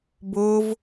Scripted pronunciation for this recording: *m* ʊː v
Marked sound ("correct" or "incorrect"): incorrect